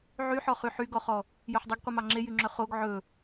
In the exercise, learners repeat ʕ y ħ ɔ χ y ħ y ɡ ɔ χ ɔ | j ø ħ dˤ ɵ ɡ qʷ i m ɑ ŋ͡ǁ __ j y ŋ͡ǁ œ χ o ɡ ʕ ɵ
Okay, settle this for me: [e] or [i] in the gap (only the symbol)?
e